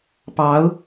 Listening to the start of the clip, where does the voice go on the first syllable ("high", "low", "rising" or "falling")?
rising